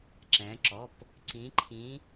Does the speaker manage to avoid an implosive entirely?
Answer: yes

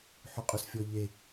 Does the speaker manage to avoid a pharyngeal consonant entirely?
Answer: no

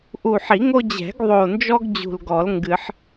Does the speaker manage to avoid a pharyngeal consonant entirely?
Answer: no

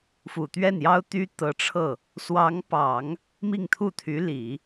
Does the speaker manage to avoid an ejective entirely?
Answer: yes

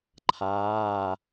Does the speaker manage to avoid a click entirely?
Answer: no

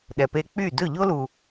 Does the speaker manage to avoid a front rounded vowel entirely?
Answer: no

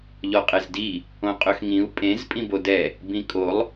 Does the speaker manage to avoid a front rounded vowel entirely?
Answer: no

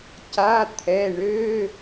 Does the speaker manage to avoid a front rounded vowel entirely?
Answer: no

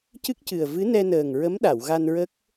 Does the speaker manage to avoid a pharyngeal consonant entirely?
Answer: yes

